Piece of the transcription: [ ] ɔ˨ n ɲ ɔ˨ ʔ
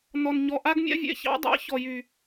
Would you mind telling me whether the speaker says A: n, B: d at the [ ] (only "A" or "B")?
A